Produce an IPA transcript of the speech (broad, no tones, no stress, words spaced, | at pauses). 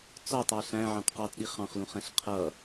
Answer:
t͡sɔtˤɑ ɬæ̃ʕɑ̃t qɑtɗi χɑ̃χlũχɛ̃ɬ qʰʌ